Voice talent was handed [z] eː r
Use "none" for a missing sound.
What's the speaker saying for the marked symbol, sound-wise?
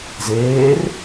z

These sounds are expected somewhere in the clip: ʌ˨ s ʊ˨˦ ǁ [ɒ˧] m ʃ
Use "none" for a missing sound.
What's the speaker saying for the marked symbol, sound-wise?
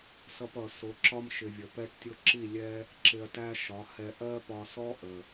ɒ˧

